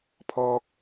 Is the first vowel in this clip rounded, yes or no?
yes